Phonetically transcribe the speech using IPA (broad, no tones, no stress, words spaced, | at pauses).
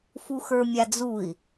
fuxə˞mʲad͡zui̯